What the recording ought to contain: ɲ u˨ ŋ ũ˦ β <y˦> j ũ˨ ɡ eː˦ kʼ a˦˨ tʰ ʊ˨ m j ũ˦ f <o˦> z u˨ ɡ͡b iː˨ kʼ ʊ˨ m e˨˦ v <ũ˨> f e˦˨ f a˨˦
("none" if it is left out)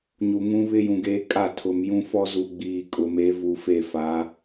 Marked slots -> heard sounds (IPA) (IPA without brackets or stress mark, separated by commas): ɪ˦, ɔ˦, u˨